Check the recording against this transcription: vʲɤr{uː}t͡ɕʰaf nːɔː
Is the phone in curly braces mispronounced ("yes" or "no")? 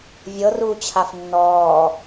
no